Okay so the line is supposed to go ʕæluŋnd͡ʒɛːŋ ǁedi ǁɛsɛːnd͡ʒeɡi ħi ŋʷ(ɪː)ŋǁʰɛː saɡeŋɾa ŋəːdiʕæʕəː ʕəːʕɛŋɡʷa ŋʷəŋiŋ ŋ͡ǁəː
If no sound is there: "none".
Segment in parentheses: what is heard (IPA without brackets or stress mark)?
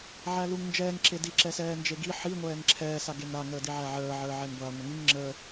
ɛː